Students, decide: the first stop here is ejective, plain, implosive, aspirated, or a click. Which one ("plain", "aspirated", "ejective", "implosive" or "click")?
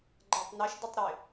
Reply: click